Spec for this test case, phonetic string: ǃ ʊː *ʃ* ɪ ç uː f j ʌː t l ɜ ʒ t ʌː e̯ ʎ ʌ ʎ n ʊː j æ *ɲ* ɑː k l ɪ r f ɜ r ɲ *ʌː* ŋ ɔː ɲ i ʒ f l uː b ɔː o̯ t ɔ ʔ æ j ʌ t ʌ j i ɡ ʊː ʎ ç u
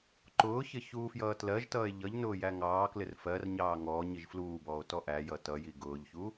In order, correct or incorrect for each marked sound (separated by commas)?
incorrect, incorrect, incorrect